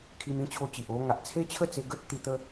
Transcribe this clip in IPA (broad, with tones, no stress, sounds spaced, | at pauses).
kʰ i˧ m ĩ˧ t͡ɕʰ o˧ t͡ɕ i˨ ʔ o˧ ŋ a˨ ʔ t͡sʰ e˦ t͡ɕʰ ə˥˧ t͡s e˧ ɡ ə˦ t̚ t̪ i˧ t̪ ə˦